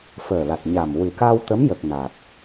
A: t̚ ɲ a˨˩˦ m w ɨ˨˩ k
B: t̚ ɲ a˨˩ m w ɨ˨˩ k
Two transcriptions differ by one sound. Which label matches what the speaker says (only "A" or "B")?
B